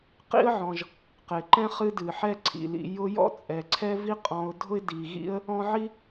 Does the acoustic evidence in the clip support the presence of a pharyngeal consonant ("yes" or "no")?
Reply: yes